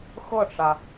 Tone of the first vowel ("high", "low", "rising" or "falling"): falling